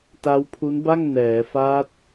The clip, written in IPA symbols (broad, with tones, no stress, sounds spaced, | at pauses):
t a˦˥ w pʰ u˦˥ n b a˥˩ ŋ n ɛː˩˦ f a˦˥ t̚